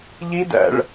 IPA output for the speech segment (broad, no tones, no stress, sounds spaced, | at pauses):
ʎ i d æ̰ ɭ